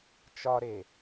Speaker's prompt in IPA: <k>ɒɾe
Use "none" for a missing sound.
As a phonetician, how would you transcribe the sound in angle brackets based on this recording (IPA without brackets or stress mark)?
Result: t͡ʃ